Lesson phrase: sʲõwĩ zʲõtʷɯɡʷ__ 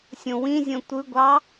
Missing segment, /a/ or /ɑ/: ɑ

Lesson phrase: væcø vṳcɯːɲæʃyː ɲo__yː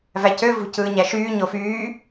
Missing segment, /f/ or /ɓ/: f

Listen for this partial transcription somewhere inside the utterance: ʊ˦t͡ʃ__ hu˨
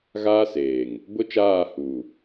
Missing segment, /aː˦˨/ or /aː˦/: aː˦˨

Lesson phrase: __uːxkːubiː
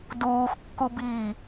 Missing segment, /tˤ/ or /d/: d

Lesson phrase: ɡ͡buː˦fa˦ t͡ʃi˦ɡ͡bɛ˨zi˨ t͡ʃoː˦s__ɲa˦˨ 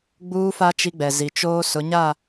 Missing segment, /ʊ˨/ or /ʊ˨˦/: ʊ˨˦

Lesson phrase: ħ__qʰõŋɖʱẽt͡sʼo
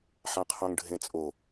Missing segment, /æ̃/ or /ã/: ã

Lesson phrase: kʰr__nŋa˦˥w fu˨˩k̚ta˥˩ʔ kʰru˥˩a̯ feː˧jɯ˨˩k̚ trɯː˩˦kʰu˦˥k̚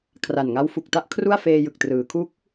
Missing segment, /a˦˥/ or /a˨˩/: a˨˩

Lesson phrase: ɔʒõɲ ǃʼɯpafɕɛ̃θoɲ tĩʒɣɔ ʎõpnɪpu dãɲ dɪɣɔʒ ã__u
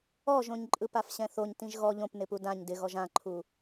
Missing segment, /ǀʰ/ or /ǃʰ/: ǃʰ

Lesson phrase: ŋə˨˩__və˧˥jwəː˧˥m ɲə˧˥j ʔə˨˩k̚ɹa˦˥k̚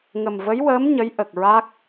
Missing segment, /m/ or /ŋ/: m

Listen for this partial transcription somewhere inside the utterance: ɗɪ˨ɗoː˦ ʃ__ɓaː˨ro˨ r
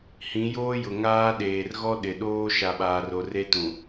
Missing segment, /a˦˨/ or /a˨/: a˨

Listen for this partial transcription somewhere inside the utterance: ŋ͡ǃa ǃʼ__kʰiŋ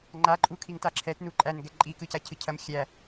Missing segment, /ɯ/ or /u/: u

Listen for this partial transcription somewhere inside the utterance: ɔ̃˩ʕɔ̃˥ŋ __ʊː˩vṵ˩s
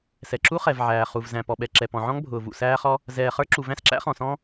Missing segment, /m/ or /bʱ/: bʱ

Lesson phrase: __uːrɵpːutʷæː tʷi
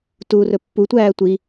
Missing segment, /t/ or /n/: t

